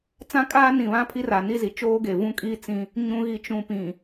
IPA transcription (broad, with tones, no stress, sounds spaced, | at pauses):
t͡s ã˦ kʼ aː˦ n ĩ˨ β ã˦ pʰ i˦ r a˨ n i˦ z i˨ t͡ʃ oː˦ ɡ e˨ v ũ˦ kʼ i˦ t͡s ĩ˦ | ɲ ũ˨ ɣ i˨ t͡ʃ ũ˨ p ĩ˨